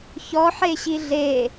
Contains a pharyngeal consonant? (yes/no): yes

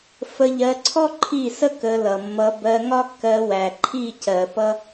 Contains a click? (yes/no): yes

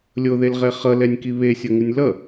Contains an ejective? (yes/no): no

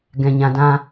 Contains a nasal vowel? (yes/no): yes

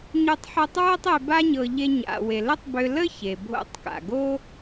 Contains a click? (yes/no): no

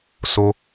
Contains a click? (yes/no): no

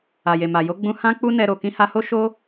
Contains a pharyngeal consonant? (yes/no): no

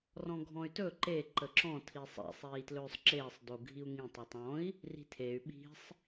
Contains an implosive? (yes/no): yes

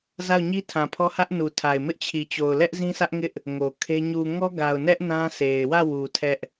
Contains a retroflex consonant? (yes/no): no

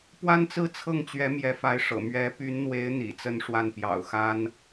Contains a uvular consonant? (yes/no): no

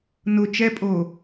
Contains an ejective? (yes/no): yes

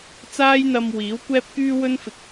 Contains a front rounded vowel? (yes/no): yes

